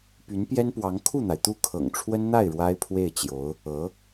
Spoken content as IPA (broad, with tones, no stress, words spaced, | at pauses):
py˧˥npjɛ˥npwɑ˧˥ŋ kʰu˥˩n̪a˩ɪ̯ t̪u˥˩kʰɤ̰˨˩ŋʈ͡ʂʰwə˥n n̪a˥˩ɪ̯ ɻwa˥ɪ̯pʰwe˥˩ɪ̯t͡ɕjo˧˥ʊ̯ | ɤ˧˥